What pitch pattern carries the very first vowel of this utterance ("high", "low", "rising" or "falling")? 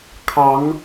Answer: rising